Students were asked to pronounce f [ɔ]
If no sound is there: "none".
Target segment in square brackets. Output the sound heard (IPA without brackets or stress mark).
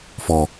ɔ